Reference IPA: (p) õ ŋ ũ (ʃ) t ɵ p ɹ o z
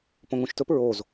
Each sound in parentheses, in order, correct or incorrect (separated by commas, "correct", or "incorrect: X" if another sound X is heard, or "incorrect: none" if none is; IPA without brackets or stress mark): correct, correct